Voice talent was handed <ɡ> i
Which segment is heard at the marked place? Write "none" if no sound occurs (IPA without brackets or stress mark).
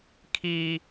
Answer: kʰ